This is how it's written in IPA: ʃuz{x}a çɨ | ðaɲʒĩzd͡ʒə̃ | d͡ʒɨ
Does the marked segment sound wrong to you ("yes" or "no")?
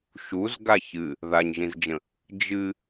yes